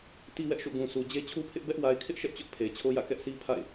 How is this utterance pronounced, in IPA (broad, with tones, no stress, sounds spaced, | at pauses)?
t i˦ w ɛ˦ ʔ ʃ o̰˦˨ ɡ ũ˨ s u˨ d͡ʑ e˦ t͡ɕʰ u˦ pʰ ɪ˦ ʔ b ɛ˦ ʔ w a˨ ɪ̯ kʰ ɪ˦ ʔ ʃ ɛ˦ ʔ t͡ɕ ʊ˦ ʔ pʰ e˨ ɪ̯ t͡ɕʰ o˦ j ä̰˦˨ k ɛ˦ ʔ sʰ i˦ pʰ a̰˦˨ ɪ̯